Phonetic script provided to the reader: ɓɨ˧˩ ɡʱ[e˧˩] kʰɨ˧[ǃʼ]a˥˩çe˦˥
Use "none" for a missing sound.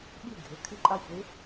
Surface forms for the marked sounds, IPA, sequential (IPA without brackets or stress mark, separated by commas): e˩˥, ǃʼ